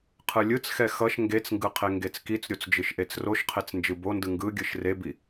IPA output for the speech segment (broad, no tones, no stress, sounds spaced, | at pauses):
qʰ ɯ lʲ ɯ t͡s x ɛ x ʌ ʃ ŋ ɡ e t͡s ŋ ɡ ɯ qʰ e ŋ ɡ e t͡s k i t͡s ɾʲ o t͡s d͡ʒ ɯ ʃ ʔ e t͡s r o ʃ qʰ e t͡s n d͡ʒ ɯ b o n d ɯ ŋ ɡ ɯ ɡʲ ɯ ʃ r e b i